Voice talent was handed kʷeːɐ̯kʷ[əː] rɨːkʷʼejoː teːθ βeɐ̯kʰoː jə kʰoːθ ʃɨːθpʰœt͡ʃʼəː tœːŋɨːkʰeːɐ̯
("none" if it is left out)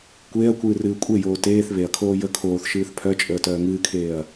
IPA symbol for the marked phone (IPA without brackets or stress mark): ɨː